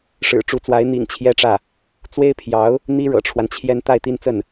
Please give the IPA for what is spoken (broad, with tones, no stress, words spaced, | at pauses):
ʂɻ̩˨˩ʈ͡ʂu˧˥t͡swa˧˥ɪ̯ n̪ḭ˨˩ŋt͡ɕʰjɛ˥ʈ͡ʂä˥˩ | t͡swe˥ɪ̯pʰjɑ˧˥ʊ̯ | n̪i˥ɻɤ̰˨˩ʈ͡ʂʰwa˦nt͡ɕʰjɛ˥n t̪a˥˧ɪ̯ t̪i˥˧nt͡sə˥˩n